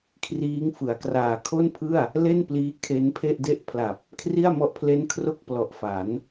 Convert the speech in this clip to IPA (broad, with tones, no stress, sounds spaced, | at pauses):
kʰ r iː˦˥ ŋ f ɯ˩˦ a̯ k r aː˨˩ kʰ o˥˩ n pʰ ɯ˥˩ a̯ | l e˥˩ n p l iː˦˥ kʰ e˦˥ n pʰ e˥˩ ʔ d e˥˩ ʔ pʰ l a˨˩ p̚ | kʰ r i˥˩ a̯ m ɔ˦˥ ʔ pʰ l e˦˥ n kʰ r o˥˩ k̚ p l ɔ˨˩ ʔ f a˩˦ n